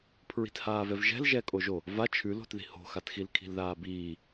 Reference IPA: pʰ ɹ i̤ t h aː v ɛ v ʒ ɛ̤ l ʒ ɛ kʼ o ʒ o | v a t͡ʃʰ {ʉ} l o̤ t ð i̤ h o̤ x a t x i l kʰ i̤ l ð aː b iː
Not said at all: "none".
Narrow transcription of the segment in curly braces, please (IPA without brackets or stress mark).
ʉ